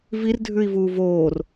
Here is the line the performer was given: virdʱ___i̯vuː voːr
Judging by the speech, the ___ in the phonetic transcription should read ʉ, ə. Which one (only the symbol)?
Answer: ʉ